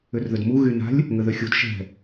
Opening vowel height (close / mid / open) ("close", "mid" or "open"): close